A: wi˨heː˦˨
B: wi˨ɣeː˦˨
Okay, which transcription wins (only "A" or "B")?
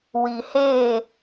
A